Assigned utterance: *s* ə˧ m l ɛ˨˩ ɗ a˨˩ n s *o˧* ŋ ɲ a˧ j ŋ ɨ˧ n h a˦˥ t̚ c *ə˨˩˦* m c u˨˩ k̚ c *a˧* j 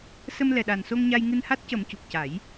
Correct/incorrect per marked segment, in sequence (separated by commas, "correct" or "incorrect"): correct, correct, correct, incorrect